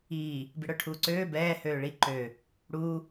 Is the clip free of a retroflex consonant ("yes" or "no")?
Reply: no